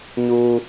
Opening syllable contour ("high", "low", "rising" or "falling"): high